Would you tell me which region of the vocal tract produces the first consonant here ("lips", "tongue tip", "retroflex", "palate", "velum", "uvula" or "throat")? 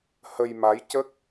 throat